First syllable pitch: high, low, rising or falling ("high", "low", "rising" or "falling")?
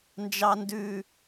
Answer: low